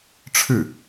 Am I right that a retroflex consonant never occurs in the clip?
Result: no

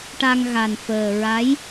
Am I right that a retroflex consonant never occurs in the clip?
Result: no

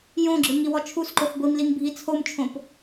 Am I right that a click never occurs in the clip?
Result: no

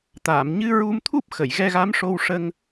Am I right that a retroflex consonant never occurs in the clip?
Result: no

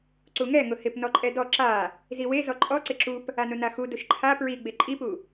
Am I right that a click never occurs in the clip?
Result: no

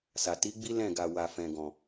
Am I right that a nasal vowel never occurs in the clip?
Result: no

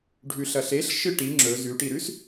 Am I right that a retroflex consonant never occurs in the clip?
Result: no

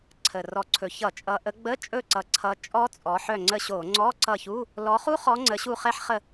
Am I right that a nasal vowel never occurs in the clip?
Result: yes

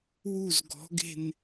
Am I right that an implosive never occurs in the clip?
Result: yes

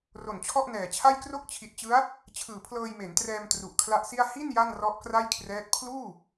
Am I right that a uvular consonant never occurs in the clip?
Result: yes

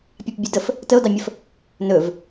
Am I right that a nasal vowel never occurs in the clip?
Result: yes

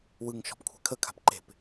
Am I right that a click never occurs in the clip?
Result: no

